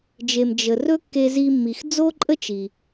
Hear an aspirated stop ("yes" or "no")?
no